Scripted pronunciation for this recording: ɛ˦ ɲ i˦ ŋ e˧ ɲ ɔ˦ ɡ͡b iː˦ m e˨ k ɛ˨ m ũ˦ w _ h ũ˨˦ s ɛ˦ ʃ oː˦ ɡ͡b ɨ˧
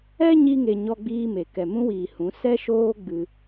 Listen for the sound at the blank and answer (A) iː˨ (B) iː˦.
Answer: A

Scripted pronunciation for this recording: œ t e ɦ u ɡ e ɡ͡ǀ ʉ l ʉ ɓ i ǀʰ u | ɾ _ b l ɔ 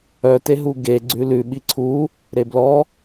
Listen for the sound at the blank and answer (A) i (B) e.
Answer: B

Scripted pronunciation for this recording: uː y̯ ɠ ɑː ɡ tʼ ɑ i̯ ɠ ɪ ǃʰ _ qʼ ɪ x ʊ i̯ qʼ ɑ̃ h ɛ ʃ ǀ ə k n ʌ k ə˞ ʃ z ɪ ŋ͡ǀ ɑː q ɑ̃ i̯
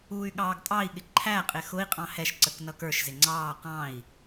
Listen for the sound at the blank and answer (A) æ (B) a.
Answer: A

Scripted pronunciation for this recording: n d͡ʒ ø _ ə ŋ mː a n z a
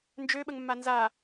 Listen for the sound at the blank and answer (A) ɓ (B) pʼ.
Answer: A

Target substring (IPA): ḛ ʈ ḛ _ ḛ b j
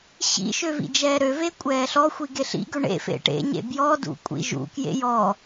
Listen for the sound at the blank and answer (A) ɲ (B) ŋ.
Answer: A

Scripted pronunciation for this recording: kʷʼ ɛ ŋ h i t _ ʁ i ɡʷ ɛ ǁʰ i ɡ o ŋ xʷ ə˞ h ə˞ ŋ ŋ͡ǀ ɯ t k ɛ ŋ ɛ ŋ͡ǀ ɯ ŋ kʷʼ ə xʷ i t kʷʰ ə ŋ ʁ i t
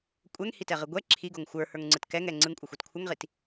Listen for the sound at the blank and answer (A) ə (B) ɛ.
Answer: B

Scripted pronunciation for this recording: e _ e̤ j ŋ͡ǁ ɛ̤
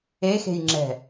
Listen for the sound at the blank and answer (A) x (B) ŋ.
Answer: A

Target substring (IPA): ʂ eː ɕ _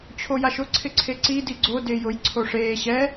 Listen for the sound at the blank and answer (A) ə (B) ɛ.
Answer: B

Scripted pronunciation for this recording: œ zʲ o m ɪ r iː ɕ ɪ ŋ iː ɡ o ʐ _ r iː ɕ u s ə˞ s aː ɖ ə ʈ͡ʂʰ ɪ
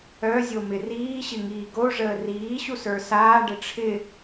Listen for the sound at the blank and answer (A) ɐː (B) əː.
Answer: B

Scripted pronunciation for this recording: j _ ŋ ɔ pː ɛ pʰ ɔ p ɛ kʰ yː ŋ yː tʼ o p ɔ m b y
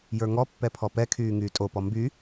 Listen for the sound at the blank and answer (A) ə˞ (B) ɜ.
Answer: A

